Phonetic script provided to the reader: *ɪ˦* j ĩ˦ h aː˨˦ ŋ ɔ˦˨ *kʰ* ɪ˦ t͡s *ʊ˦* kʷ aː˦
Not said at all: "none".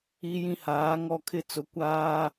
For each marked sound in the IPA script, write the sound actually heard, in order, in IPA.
i˦, kʰ, ʊ˨˦

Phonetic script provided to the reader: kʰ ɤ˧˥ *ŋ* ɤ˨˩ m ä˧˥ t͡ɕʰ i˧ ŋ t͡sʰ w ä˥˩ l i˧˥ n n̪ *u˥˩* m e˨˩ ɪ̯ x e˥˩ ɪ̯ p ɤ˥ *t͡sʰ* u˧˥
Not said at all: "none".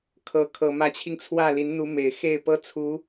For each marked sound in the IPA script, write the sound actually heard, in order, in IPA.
kʰ, u˧˥, t͡sʰ

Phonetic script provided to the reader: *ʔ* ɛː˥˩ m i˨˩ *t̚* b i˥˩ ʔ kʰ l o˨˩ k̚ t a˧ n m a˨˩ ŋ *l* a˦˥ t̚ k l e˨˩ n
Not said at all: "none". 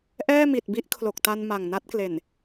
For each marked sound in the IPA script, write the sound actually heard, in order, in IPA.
ʔ, t̚, n

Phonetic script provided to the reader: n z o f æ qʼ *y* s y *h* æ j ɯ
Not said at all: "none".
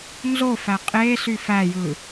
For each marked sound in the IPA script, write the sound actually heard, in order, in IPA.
e, f

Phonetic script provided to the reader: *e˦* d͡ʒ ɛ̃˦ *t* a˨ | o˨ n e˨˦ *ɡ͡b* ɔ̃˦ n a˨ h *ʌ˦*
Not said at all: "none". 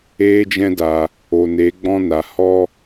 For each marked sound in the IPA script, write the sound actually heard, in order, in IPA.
eː˦, d, ɡ͡b, ɔ˦

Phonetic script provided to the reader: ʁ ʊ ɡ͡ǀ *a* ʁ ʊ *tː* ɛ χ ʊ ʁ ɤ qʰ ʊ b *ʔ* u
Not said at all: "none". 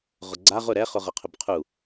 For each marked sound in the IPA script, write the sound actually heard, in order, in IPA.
a, ɾ, qʰ

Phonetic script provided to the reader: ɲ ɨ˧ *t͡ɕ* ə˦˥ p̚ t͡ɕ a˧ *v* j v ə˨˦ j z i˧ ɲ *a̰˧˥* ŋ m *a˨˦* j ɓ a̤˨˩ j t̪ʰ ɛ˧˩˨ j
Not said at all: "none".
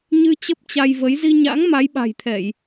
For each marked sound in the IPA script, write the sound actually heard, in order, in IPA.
t͡ɕ, none, a̰˧˥, a˨˦

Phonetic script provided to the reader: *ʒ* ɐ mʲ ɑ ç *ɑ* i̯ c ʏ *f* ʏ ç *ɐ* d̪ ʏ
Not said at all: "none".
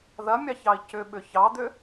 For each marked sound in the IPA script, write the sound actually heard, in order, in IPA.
ð, ɑ, ɓ, ɑ

